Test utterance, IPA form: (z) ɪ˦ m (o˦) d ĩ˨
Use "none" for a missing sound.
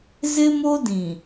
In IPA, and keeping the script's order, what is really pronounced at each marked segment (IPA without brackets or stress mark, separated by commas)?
z, o˦